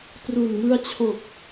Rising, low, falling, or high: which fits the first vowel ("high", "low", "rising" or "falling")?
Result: low